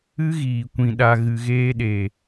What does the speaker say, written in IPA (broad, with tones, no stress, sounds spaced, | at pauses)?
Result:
ɨ˦ ɣ iː˨ kʷ ĩ˨ ɗ a˨ ɣ ɨ˨ ɣ eː˧ ɗ e˨